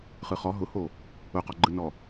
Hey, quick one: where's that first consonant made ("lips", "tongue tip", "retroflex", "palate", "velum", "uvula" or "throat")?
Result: uvula